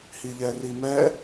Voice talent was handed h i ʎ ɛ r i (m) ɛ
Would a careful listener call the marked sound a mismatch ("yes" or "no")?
no